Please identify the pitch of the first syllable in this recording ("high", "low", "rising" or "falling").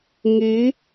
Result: rising